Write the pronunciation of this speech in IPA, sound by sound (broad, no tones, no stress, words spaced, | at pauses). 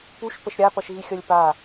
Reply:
puʃ pəʃɾʲapʌʃɣi xʲʌlʲpa